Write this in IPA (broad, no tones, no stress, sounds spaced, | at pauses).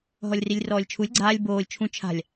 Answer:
ɦ ɔ lʲ r i lʲ r ɔː lʲ t͡ʃʰ u lʲ ɡ͡ǀ aː lʲ b oː lʲ t͡ʃʰ ũ t͡ʃʰ a̤ lʲ